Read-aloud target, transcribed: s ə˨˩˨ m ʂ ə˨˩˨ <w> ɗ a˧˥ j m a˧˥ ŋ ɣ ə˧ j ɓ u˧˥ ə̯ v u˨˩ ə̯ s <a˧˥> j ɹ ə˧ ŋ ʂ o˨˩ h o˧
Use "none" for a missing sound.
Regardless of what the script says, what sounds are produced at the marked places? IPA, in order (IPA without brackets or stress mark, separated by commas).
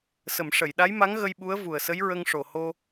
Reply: j, ə˧˥